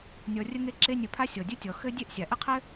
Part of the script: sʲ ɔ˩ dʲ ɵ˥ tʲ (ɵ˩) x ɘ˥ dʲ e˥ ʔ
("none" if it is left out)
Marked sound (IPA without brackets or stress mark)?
ɔ˩